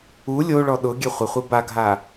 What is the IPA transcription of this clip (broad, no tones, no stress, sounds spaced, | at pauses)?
u lʲ o ɭ ɔ ɗ ʊ ɡʲ ɛ χʷ ɪ χʷ i b a ɡʱ a